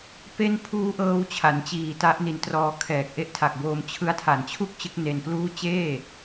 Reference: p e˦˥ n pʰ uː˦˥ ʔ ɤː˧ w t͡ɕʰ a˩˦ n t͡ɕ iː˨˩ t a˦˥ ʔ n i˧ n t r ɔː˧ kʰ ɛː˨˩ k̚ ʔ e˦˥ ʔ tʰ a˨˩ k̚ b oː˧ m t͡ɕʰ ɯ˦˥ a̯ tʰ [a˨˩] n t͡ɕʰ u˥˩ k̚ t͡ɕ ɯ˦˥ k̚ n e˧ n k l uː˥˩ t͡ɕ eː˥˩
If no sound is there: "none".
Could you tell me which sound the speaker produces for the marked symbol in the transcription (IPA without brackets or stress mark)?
a˨˩